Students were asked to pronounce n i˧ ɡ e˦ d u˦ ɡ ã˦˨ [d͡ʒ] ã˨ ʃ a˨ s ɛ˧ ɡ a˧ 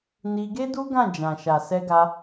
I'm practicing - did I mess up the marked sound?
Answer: no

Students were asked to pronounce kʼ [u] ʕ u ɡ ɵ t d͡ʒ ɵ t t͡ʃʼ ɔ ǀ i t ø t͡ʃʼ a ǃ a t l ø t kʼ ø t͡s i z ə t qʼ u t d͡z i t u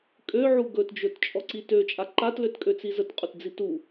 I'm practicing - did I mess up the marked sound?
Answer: yes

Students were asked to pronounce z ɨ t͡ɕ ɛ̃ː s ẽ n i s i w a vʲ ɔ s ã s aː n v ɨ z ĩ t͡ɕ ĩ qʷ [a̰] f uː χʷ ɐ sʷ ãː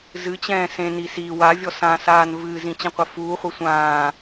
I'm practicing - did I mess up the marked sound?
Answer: yes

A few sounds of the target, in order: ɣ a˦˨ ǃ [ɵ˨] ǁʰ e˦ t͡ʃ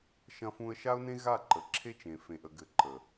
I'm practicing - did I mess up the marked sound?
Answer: yes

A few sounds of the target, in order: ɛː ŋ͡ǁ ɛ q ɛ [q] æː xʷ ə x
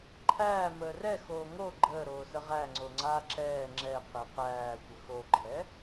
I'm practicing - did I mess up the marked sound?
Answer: no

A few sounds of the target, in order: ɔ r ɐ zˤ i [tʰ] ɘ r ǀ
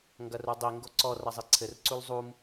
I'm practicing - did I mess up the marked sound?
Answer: yes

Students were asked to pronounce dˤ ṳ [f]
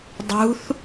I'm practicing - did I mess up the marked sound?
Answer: yes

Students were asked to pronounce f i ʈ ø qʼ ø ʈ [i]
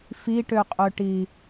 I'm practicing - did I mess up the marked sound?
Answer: no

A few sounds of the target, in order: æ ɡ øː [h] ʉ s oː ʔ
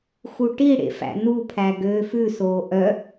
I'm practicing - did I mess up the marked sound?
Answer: yes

